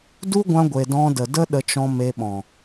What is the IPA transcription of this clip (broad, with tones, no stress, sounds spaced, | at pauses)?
d u˦ ɡʷ ã˧ ɡʷ e˨ d ɔ̃˧ d ə˨ d ə˦ ɗ ə˧ t͡ʃ ɔ̃˧ m e˧ ɓ ɔ̃˨